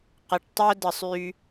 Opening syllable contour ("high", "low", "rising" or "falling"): low